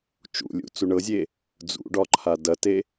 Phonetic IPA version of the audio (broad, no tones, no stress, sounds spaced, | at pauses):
t͡ʃ ṵ lʲ ṵ t͡s u ɳ ɤ zʲ e | d͡z ṵ ɖ ɒ ǃʰ a d ɐ t e